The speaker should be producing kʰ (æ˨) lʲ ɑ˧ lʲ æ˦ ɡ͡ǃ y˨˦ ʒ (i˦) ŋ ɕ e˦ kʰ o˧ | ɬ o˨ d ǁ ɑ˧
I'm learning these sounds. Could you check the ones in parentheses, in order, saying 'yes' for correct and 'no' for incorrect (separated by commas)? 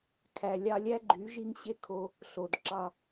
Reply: yes, yes